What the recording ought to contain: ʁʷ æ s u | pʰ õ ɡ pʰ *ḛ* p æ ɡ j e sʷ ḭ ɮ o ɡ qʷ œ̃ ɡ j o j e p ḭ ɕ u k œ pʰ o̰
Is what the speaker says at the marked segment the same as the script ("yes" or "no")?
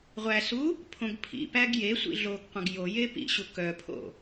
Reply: no